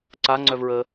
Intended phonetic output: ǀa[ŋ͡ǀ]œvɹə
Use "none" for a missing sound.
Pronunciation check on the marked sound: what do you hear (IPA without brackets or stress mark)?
ŋ͡ǀ